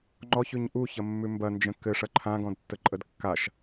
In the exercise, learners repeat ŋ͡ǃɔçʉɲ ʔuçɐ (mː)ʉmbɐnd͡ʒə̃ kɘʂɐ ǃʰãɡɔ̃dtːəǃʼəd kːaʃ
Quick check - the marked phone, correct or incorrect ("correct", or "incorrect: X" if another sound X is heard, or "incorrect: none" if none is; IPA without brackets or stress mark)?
correct